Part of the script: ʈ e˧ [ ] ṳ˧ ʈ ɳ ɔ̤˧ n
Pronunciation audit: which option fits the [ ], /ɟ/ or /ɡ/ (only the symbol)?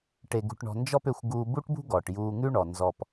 ɡ